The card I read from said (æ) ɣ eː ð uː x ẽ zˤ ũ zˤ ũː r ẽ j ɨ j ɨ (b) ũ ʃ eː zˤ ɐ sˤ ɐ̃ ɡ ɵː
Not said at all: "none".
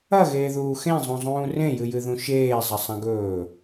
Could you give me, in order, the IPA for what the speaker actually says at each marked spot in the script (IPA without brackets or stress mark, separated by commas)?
ɐ, ð